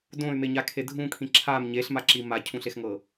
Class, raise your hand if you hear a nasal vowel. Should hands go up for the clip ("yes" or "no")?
yes